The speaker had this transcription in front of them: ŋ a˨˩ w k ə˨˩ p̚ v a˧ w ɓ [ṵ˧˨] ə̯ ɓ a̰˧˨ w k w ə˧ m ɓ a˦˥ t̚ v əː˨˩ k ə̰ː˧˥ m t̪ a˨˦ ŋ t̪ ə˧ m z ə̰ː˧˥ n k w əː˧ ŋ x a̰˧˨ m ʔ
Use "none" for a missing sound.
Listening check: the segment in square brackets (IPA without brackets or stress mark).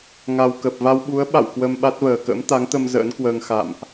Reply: u˨˦